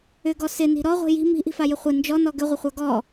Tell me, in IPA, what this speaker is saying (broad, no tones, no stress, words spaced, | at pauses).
ʏɡɔ sɪni̤ ɾɔʁʷi̤ ji̤ mi̤ʔi̤fajɪ χʷɪ nd͡ʒɔnɔ ɡʏʁʷɪχʷa ɡɔ